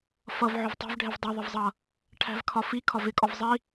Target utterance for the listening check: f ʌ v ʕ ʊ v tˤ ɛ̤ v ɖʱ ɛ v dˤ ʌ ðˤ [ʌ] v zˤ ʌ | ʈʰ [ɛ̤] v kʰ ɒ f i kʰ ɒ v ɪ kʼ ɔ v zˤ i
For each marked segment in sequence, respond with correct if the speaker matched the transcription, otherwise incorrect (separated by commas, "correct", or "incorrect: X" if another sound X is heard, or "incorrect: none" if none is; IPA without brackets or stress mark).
incorrect: ə, incorrect: æ̤